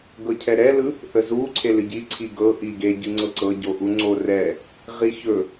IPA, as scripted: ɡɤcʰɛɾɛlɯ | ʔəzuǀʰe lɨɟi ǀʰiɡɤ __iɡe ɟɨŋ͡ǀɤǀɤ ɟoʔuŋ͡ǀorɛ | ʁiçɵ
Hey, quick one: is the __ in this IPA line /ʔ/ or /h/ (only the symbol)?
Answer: ʔ